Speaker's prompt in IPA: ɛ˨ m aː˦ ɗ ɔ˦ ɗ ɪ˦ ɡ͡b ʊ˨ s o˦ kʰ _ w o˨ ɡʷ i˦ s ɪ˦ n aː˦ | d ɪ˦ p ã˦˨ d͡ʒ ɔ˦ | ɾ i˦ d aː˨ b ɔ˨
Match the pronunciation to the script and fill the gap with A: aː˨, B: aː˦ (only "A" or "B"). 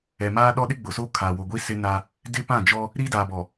A